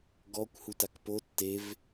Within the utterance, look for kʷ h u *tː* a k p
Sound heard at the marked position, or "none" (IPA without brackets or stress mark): t